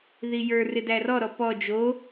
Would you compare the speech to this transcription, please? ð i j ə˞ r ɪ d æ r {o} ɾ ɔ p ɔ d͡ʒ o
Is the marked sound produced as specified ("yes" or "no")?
no